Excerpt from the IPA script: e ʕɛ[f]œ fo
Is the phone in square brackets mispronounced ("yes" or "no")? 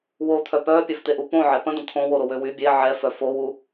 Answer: no